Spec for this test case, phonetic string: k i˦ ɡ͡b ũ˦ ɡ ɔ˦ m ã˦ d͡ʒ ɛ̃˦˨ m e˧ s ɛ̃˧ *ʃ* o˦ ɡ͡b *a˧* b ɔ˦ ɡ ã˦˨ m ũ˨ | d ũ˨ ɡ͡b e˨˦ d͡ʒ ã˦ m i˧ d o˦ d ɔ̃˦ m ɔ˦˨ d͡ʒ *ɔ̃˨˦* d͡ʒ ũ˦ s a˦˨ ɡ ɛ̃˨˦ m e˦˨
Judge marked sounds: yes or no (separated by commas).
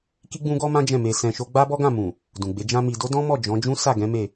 yes, no, yes